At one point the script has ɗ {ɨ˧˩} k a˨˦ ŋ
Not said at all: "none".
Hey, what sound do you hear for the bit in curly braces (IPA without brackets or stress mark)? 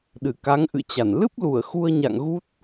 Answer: ɨ˧˩